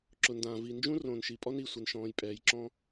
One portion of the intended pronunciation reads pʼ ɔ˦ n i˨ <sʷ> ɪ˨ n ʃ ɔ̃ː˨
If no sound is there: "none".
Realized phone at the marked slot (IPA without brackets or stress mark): sʷ